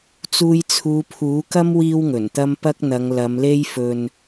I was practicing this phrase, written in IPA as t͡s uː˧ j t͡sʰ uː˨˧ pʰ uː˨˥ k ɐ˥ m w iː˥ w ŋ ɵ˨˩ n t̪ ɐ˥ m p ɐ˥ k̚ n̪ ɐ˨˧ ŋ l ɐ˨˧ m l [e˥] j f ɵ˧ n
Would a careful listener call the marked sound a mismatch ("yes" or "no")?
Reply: no